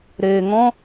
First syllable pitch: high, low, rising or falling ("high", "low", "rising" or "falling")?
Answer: low